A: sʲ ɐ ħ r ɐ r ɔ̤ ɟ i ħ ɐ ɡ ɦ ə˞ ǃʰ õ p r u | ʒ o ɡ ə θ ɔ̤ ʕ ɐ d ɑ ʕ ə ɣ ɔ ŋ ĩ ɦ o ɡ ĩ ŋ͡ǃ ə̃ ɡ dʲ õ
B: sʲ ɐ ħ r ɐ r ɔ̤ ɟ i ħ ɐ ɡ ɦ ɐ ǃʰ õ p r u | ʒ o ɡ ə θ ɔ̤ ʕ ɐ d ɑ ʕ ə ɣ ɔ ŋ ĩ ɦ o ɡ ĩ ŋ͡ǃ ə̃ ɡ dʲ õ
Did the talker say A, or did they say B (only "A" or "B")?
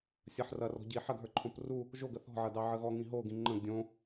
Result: A